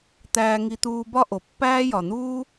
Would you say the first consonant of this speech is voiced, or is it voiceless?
voiceless